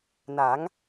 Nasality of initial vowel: oral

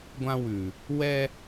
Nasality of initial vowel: nasal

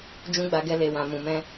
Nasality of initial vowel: nasal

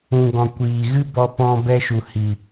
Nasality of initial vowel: nasal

